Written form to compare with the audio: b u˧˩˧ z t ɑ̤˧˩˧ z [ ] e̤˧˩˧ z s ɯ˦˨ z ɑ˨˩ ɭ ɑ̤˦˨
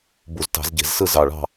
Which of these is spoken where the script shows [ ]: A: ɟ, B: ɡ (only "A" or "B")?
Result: A